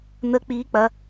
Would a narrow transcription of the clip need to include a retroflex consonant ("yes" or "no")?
no